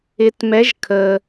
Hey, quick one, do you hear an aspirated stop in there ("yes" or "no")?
yes